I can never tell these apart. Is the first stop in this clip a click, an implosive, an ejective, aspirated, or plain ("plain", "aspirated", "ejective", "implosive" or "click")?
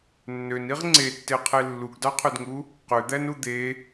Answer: click